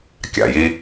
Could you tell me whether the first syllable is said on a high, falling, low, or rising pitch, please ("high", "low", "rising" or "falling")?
low